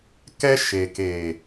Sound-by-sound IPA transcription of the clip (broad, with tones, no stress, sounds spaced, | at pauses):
k ɛ˦ ʃ e˨ k eː˨